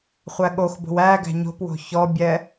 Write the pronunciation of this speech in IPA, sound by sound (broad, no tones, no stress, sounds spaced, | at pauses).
χʷ æ ɠ o x b o̤ w æ ɡ æ̤ ɲ o̤ p w o̤ ç ɔ bʲ ɛ